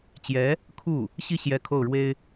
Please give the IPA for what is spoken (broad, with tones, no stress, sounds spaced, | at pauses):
t͡ɕ j ɛ˧˥ | kʰ u˥˩ | ɕ i˥˩ ɕ j ɛ˥ kʰ o˥˩ ʊ̯ ɻ w e˥ ɪ̯